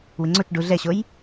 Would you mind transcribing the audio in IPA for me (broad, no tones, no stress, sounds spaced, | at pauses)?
w ɪ ŋ͡ǀ o t͡ʃ ɖ u ɮ ɛ ɕ o j